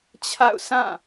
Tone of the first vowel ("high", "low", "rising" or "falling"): falling